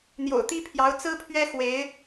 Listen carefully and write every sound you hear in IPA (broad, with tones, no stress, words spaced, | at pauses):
n̪jo̰˨˩ʊ̯t̪i˥pʰjɑ˧˥ʊ̯ t͡sɹ̩˥pʰɥɛ˥ xwe˧˥ɪ̯